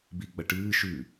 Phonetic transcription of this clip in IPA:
b i ɡ͡b ɐ ʈ ɨː ʃ ʉ

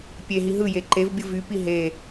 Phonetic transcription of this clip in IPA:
pʲ e ɦ i ɦ ɯ j e ǃ e v bʲ ɯ v y p i ɦ e

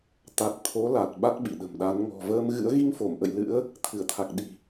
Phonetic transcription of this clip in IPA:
t̪ a˨˩ t̚ t̪ʰ o˨˦ l a˨˩ t̚ ɓ a˦˥ t̚ ɓ ḭ˧˨ ɗ ə̤˨˩ m ɗ a˨˦ n ŋ ɔ̤˨˩ v əː˧ m ɣ ɨ̰˧˥ ə̯ ɣ i˧ ŋ f o˧˩ m ʔ ə̰˧˨ j l ɨ̰˧˥ ə̯ | t̪ʰ ɨ˧˩ ə̯ t̪ʰ a˨˩ k̚ ɗ i̤˨˩

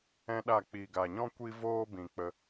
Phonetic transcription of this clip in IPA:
ɛ̃˦ ɗ a˦˨ k͡p i˨ ɡ a˨ ɲ ɔ̃˦ kʷ i˦ v oː˦ b ĩ˨ k͡p ə˧

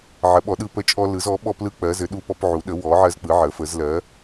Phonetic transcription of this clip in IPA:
ʕ ə˩˥ ɓ ɔ˩˥ ɗ ɯ˦ p ə˦ t͡ʃʼ ɔ˦ l ɯ˩˥ z ɔ˩˥ ɓ ɔ˦ p l ɯ˦ k͡p ɜ˩˥ z ɘ˩˥ ɗ u˦ p ɔ˦ p ʕ u˩˥ ɗ ə˩˥ w ɔ˩˥ ʕ ɜ˦ z k͡p ɯ˩˥ ʕ ə˩˥ f ə˩˥ z l ɜ˩˥

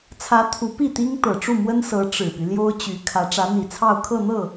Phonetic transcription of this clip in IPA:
t͡sʰ ä˧˥ t̪ʰ u˧˥ p i˥˩ t̪ i˥ ŋ t̪ ɤ˨˩ ʈ͡ʂ u˥˩ m w ə˥ n s ɤ˧˥ ʈ͡ʂ ɻ̩˨˩ p y˦ l j o˥ ʊ̯ t͡ɕ y˧˥ kʰ ä˧˥ ʈ͡ʂ ä˧˥ n̪ i˨˩ t͡sʰ ɑ˥˧ ʊ̯ kʰ ɤ˥˧ n̪ ɤ˥˩

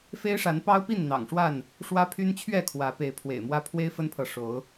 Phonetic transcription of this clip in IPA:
f e˦ ɪ̯ ʂ a˨˦ n p ɑ˦ ʊ̯ p i˥˨ n n̪ ɑ̰˨˩ ŋ ʂ w a˥˨ n | ʂ w ä˦ pʰ y˦ n t͡ɕʰ ɥ ɛ˥˨ kʰ w ä˨˦ p e˨˦ ɪ̯ pʰ w ḛ˨˩ ɪ̯ m w ä˦ pʰ w e˦ ɪ̯ f ə˦ n pʰ ɤ˨ ʂ o˨˦ ʊ̯

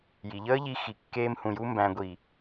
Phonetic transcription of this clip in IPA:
j i˨ ʎ əː˦ ʎ i˧ x i˧ kː eː˦ m h ũ˧ j u˦ m b æ̃˨ ɡʷ i˨

